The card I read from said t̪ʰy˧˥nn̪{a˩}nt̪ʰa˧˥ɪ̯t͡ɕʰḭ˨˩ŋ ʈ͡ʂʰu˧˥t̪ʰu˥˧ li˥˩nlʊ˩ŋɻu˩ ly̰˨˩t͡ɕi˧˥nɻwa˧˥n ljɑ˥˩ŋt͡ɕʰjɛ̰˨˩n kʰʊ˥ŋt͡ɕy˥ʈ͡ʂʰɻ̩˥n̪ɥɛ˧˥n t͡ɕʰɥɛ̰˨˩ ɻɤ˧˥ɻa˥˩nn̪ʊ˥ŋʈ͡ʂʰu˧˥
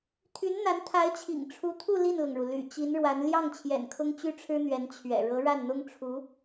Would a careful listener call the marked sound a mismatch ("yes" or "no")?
yes